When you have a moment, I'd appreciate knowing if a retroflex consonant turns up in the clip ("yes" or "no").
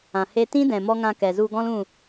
no